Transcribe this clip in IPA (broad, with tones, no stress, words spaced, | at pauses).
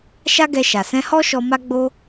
ʃa˦ɡɛ˧ʃa˨ sɛ̃˧hɔ˦ʃɔ˧ ma˦ɡ͡bo˦